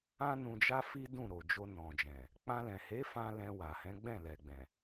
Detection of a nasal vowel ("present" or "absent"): present